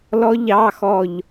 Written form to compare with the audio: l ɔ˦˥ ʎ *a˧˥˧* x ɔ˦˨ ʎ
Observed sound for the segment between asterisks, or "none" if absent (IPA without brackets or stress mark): ɑ˧˥˧